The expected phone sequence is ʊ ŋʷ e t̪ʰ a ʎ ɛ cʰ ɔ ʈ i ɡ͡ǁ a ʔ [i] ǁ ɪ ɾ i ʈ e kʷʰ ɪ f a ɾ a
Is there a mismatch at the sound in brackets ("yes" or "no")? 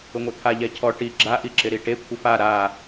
no